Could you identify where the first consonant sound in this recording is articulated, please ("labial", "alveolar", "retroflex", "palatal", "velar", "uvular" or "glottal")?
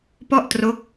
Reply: labial